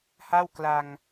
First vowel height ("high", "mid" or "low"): low